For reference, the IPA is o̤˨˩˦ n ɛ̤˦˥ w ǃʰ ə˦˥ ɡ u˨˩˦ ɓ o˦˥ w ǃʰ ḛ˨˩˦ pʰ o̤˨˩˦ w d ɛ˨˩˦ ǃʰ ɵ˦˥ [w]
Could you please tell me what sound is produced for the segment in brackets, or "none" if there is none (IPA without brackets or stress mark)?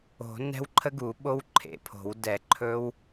w